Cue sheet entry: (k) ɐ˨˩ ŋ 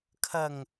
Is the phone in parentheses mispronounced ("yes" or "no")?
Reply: yes